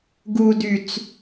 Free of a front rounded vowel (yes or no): no